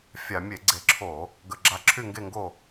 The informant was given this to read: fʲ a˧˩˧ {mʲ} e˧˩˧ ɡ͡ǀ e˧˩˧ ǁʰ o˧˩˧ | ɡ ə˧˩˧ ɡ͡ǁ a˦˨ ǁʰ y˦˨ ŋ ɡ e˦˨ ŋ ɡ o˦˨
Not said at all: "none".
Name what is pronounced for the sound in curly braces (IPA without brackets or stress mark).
mʲ